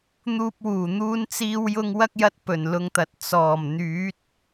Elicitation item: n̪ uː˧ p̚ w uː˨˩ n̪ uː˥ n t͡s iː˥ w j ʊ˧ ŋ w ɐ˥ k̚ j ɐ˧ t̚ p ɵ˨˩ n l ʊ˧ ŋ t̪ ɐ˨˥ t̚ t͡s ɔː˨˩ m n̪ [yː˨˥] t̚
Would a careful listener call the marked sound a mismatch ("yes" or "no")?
no